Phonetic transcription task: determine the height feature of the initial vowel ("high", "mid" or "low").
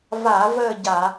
low